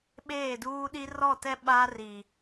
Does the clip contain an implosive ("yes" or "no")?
yes